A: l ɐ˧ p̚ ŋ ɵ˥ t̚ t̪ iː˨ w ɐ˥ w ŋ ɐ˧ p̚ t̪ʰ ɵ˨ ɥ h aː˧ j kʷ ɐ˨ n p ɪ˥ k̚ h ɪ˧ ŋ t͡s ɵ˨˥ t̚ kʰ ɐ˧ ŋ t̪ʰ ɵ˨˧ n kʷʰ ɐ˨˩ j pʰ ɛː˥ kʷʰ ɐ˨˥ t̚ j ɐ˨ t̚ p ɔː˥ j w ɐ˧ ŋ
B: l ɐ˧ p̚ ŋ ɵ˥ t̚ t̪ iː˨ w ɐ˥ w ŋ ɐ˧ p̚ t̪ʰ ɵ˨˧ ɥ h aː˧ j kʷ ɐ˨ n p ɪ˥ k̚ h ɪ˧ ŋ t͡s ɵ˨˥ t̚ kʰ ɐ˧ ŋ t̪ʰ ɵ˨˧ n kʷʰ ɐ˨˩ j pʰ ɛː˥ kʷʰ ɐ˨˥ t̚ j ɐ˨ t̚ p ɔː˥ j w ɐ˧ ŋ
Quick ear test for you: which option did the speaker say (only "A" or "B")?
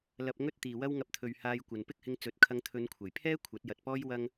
A